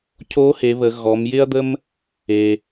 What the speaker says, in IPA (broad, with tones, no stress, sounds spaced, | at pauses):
cʰ o˧˥ h e˩˧ β ə˩˧ ɣ ɔ˩˧ m j ɪ˥ ɐ̯ d̪ ə˥ m | e˩